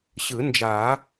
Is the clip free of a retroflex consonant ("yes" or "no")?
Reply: yes